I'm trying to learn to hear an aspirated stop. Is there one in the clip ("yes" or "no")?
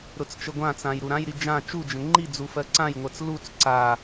no